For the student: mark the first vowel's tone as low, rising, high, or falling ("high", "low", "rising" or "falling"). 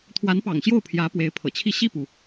rising